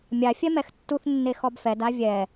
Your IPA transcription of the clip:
mʲ a fʲ ɛ m ɛ x tː u θ nː e x ɔ b f ɛ d a vʲ ɛ

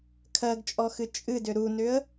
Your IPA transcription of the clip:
kʰ ɜ ɡ t͡ʃʼ ɔ x ɨ t͡ʃʼ ɨ d ʏ ɾ u n ʏ ə̯

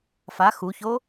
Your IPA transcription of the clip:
f a x u ç o

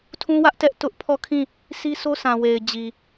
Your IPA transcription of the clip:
tʰ ũ˦ w ä˦ ʔ t ɛ˦ ʔ t ʊ˦ ʔ pʰ ɔ˦˨ kʰ ĩ˦˨ | s i˦ s o˦ sʰ ã˨ w e˨ ɪ̯ d͡ʑ i˨

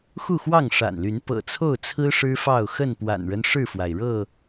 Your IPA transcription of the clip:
x u˥˨ x w ɑ˥˨ ŋ ʂ a̰˨˩ n l y˨˦ n p ɤ̰˨˩ t͡sʰ o˥˨ ʊ̯ t͡sʰ ɹ̩˦ ʂ ɻ̩˦ f ɑ˥˨ ʊ̯ x ə˥˨ n p w a̰˨˩ n ɻ ə˦ n ʂ ɻ̩˥˨ f w a˩ ɪ̯ ɻ ɤ˥˨

